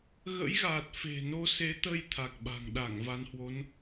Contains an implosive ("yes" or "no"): yes